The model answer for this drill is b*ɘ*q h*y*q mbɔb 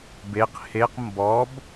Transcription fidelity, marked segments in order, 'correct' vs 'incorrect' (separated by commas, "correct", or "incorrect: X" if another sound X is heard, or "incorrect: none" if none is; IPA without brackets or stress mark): incorrect: e, incorrect: e